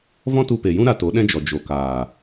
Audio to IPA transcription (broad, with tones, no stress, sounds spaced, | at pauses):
v ɔ̃˦ t u˧ p e˨ j ũ˦ ɾ a˧ t o˨˦ ɗ ɛ̃˦ d͡ʒ ɔ˨ d͡ʒ o˨ k aː˨